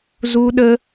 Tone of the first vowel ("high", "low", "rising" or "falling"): high